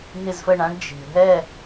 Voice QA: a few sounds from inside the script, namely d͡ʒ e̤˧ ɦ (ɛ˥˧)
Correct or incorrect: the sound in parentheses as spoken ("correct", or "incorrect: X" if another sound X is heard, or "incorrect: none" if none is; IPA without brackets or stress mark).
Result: correct